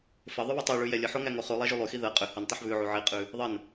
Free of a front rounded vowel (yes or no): no